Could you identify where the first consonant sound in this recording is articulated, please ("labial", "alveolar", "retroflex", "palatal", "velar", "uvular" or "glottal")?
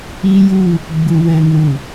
palatal